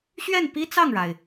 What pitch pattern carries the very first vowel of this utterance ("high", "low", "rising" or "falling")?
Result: falling